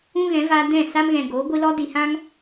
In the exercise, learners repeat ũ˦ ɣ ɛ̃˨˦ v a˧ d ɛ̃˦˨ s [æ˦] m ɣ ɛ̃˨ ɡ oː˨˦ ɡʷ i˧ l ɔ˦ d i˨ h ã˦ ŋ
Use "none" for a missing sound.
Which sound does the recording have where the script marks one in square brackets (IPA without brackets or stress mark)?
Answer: a˦